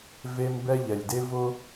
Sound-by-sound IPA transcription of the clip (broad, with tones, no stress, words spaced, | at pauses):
ve˦m bɛ˦ ʎɛ˩lʲde˥vʊ˥